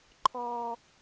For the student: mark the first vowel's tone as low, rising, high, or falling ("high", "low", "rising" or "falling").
high